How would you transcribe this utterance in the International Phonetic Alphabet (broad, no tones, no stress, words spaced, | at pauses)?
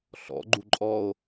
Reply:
ɬɔ̰ɡ͡ǃu ǃʼɔo̯